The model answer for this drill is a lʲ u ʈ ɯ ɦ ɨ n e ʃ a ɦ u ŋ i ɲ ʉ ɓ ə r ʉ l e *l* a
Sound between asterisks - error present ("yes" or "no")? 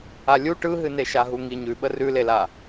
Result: no